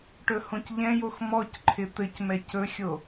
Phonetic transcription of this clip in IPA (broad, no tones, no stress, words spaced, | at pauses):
ʈɵhõcʎɛ̃jox mɔcǃʰɪ t̪ɘcmɛc ɵxʲo